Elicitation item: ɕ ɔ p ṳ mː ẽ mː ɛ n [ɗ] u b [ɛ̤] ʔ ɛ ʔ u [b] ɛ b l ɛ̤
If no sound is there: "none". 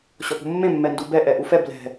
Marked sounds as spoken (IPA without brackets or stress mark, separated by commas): d, ɛ, f